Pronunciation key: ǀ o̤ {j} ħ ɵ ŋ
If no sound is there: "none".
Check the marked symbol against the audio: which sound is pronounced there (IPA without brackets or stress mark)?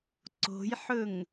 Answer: j